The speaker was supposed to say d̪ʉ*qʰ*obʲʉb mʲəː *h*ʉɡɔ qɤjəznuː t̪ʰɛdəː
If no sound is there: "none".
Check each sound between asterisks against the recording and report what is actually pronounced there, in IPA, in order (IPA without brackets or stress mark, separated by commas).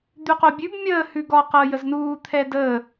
q, h